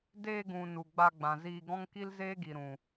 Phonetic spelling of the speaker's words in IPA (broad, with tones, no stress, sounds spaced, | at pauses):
d eː˧ ɡ ũ˨ n u˨ ɡ͡b a˧ ɡ͡b ã˨ z iː˧ ɡ ɔ̃˦ ŋ k i˦ l z eː˦ ɡ i˨ ɾ ũ˨